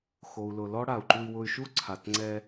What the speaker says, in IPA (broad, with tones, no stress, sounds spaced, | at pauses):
x o˩ u̯ l ʊ˩ l ɔ˦ ɽ a˩ u̯ ǃ u˨ i̯ w ʊ˨ y̯ ʃ u˦ ǀʰ a˩ t ŋ͡ǀ ɛ˨